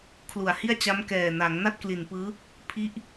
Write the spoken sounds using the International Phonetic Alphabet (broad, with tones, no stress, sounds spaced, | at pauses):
kʰ l u˨˩ a̯ h i˥˩ a̯ t͡ɕ a˦˥ m k ɛː˨˩ n a˩˦ ŋ n a˥˩ t̚ k l i˨˩ n p ɯː˦˥ | pʰ i˦˥ ʔ